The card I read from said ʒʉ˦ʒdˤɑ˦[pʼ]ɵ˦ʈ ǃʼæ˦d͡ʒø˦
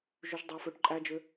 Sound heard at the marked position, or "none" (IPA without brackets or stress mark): f